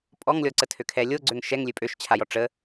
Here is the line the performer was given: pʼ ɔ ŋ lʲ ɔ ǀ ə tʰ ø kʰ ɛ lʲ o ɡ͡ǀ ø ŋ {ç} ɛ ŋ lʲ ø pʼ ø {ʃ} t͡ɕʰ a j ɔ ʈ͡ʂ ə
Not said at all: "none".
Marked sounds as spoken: ʃ, ʃ

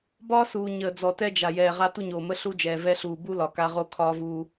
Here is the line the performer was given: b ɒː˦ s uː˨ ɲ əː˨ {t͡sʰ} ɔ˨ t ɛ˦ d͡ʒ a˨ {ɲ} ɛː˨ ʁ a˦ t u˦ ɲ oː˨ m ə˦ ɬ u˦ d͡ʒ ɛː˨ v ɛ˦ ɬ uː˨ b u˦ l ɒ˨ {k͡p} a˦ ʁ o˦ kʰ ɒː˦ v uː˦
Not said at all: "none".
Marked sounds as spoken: d͡z, j, k

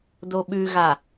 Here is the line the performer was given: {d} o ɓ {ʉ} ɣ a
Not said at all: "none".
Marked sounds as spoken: d, ʉ

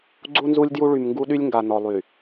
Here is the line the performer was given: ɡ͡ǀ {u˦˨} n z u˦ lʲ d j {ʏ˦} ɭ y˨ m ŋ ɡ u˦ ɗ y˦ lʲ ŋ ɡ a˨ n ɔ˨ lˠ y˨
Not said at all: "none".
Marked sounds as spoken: u˦, u˦

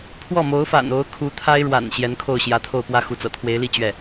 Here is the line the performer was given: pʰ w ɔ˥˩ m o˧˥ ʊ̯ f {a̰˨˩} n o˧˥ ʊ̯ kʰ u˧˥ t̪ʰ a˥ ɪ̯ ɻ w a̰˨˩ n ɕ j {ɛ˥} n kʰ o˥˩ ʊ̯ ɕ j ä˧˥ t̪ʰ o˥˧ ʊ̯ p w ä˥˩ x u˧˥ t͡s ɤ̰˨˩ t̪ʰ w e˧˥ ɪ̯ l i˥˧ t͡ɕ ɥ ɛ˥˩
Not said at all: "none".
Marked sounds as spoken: a̰˨˩, ɛ˧˥

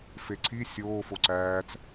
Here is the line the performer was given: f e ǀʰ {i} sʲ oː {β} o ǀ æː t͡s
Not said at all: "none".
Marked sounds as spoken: i, f

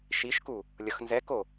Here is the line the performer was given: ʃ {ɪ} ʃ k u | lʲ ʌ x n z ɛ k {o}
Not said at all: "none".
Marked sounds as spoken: i, o

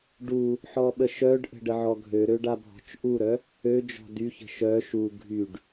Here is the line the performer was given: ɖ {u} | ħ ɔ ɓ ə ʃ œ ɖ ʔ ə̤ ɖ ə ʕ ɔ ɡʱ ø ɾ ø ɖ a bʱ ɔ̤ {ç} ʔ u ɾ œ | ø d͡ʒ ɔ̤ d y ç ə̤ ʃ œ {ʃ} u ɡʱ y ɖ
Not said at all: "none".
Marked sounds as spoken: u, t͡ʃ, ʃ

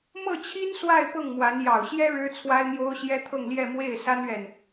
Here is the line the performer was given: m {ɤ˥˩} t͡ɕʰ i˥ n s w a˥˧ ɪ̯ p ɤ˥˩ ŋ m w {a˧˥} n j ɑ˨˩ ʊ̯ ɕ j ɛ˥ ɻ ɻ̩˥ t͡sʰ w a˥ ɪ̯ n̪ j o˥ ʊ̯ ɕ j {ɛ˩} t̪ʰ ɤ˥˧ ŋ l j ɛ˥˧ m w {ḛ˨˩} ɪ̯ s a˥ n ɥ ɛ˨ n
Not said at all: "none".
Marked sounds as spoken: ɤ˥˩, a˧˥, ɛ˥, e˥˩

